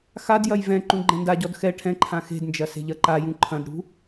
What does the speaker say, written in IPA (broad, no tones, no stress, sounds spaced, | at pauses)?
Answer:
x a d j ɐ j v ɛ̃ ǃ ũ ɡ͡ǃ ɛ̃ n d a ɟ ɔ d x ɛ ʈʰ ɛ̃ ǃʰ ã x e̤ d n d͡ʒ ɐ s e̤ ʎ ɐ ǃ a j ũ ǃʰ ɐ̃ d ɽ ṳ